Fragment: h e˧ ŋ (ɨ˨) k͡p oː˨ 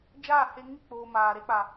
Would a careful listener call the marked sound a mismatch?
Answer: yes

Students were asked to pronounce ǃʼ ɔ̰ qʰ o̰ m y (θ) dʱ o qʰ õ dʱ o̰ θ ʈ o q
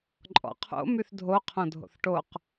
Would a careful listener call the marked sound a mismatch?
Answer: no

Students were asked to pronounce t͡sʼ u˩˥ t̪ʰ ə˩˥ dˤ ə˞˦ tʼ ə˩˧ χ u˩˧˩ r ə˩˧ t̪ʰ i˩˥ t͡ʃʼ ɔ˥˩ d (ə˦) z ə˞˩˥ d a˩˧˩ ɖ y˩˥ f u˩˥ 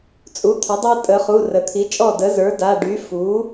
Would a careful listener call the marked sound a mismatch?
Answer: yes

